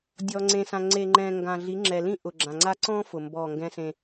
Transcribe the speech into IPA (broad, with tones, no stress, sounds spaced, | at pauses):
dʲ ɔ˨ ŋ͡ǀ ẽ˨ s ã˨ ŋ͡ǀ e˨ ŋ͡ǃ ɛ̃˨ ŋ ɡ ã˨ ɮ i˨˦ ŋ͡ǁ ɛ˨ l ĩ˦ ʔ ʊ˨ ɡ͡ǁ ã˨ ŋ͡ǀ a˦ ǀ ɔ̃˦ f ʊ˨ m b ɔ˦˨ ŋ ɡ ɛ̃˦ s ẽ˦